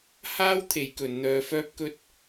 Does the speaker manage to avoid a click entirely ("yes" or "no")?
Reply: yes